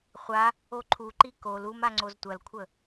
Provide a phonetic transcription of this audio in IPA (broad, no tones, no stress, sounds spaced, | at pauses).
χʷ a | o ǃʰ u ǃ i k o l u m a ŋ͡ǀ o z tʷ ɐ l kʷʰ ə